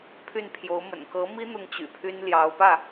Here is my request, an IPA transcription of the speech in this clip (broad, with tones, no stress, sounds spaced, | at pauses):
pʰ y˥˩ n pʰ j o˧˥ ʊ̯ m ə̰˨˩ n k ɤ˧˥ m i˥ n̪ ʊ˥ ŋ t͡ɕ y̰˨˩ pʰ y˥ n l j ɑ˧˥ ʊ̯ p ä˥˩